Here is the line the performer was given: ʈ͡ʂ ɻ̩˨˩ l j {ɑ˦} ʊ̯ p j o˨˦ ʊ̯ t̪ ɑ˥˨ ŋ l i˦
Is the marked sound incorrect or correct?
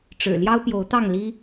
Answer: correct